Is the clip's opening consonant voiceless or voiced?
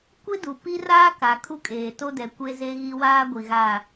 voiceless